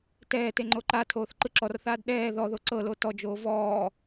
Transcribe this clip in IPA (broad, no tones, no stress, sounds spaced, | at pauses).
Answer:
t ɛː t e ŋ͡ǃ o ǃ a tʰ oː θ ǃ ɯ ǁ ɔ r θ aː d ɗ ɛː ð ɔ ð o ǀ ɤ l o t ɔ d͡ʒ oː v ɔː